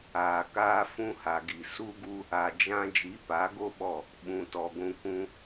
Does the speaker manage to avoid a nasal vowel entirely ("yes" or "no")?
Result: no